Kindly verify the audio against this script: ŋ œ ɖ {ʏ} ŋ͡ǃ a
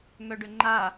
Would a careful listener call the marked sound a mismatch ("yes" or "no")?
no